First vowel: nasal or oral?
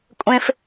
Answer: nasal